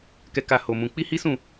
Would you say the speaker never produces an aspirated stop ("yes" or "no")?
yes